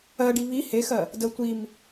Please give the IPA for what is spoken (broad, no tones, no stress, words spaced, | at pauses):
ɜɖi βi hexɜ | də tʷim